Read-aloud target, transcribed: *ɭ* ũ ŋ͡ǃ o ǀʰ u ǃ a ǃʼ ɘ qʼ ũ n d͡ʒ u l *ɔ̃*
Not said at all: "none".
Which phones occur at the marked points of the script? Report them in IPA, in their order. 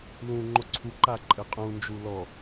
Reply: l, ɔ

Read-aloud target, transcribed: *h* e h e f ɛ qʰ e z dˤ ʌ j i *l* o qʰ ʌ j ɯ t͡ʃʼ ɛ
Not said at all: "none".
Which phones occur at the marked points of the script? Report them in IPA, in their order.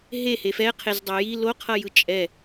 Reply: ɦ, l

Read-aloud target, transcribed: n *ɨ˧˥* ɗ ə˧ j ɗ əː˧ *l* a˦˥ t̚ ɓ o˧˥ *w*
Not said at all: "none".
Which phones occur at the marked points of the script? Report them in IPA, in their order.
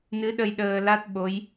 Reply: ɨ˧˥, l, j

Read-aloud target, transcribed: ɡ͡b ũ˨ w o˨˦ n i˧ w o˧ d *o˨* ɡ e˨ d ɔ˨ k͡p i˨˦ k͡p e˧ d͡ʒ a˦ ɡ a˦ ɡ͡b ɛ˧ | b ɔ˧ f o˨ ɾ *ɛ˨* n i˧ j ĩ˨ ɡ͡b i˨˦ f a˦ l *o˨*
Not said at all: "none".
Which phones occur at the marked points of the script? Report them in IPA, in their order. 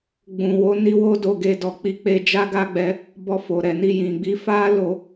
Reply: o˨, ɛ˨, o˧

